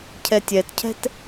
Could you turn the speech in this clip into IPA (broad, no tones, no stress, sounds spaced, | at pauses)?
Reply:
cʰ ɛ tʲ ɛ t cʰ ɛ̤ t